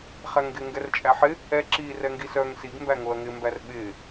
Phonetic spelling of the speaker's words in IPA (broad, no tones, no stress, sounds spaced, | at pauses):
χ æ ŋ ɡ ɪ ŋ ɡ ɛ r t͡ʃʼ æ ħ ɪ | ɛ ǁ i r ɛ ŋ ɡ i s œ ŋ s i ɡ m b æ ŋ o ɐ̯ ŋ ɪ m b æ r ɓ ɪ